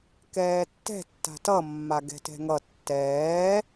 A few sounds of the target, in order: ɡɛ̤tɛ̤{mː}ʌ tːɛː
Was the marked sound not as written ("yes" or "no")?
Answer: yes